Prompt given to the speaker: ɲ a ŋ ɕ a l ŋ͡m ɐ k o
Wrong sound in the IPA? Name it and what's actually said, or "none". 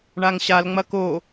ɲ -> ɳ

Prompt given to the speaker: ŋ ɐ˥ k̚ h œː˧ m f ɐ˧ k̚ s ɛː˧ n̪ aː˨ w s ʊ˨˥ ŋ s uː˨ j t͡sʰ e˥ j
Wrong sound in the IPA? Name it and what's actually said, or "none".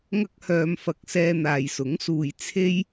w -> j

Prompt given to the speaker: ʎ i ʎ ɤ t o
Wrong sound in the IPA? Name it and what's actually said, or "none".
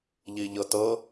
o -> ɤ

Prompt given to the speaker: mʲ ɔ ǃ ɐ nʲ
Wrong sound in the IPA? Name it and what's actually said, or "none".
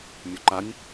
ɐ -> a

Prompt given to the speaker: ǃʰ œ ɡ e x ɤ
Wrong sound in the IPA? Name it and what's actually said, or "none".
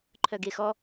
ɤ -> ɔ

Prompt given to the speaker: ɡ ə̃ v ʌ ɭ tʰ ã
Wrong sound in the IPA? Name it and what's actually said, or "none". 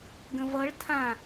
none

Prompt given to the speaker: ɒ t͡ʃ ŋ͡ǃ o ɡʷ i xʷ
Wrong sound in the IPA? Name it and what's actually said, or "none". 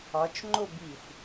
ɡʷ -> b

